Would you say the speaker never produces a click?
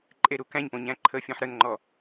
no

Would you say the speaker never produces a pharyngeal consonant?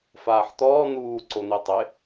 no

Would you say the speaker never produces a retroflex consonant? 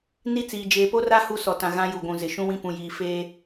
yes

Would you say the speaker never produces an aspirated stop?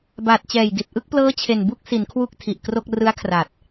no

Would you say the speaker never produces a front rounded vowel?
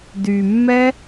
no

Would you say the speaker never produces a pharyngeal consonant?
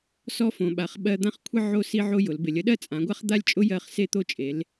no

